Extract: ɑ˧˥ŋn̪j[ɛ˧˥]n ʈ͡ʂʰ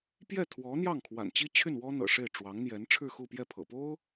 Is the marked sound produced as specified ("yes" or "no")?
yes